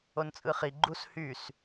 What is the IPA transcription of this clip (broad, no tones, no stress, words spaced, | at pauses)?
ont͡sʼɯχi ɡ͡ǃushys